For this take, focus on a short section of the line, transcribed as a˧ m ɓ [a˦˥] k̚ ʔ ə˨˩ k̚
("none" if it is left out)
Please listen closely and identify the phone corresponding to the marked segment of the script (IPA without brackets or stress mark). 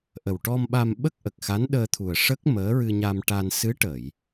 ə˦˥